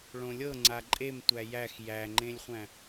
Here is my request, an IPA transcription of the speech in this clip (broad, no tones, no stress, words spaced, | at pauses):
ɭõlʲɤ ŋ͡ǀaǃʼem tʷæjæx jæŋ͡ǃẽlʲχʷæ̃